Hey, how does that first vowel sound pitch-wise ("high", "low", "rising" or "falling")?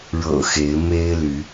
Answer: low